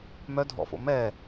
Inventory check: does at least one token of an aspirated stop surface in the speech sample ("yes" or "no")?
no